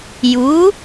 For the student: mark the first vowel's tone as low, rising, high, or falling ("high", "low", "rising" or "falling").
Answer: rising